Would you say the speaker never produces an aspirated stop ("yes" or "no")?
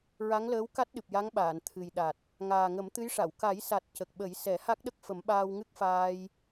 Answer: no